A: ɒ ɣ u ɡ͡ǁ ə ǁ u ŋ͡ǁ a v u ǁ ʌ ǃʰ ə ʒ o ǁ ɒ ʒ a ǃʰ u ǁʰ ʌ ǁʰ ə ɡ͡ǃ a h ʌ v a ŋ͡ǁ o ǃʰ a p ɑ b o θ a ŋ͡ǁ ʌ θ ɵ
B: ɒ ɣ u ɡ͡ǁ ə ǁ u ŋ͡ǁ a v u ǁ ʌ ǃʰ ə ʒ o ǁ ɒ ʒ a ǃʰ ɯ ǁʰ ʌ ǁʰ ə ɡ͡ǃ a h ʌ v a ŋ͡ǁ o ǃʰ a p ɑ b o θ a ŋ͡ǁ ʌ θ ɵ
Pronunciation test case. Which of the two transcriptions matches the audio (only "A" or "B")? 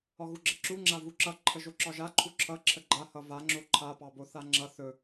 A